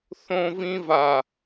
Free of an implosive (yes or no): yes